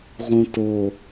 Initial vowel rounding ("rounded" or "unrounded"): rounded